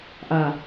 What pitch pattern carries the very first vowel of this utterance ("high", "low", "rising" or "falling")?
low